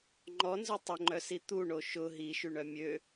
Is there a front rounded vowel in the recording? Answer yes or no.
yes